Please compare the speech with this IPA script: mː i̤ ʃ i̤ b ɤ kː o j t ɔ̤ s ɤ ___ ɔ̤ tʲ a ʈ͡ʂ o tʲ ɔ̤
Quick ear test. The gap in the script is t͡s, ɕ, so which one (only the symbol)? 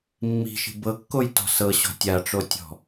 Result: ɕ